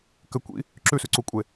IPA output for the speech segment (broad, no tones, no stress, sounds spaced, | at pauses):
k ɘ kʷ ḭ | ǁ ʉ s ʉ ǀ u kʷʼ e